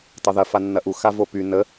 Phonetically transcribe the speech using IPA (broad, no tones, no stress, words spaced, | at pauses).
tˤɐðɐ fanːɐʔu xavopy nə